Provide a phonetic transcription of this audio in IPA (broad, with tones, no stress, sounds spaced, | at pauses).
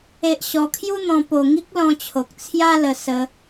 e˦ ʔ ɕ ɔ˧ kʰ j u˦ n̪ ɔ̃˧ p o˧ ŋ i˦ k̚ l ɔ̃˧ t͡ɕʰ o˨ k̚ t͡sʰ j a˦ l ə˧ s ə˦